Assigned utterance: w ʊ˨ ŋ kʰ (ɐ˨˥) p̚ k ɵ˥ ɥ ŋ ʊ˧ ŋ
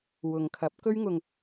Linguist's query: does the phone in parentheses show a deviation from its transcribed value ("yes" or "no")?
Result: no